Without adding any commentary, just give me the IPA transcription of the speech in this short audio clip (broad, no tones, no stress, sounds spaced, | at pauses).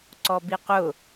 ǀ ɔ b i q ʊ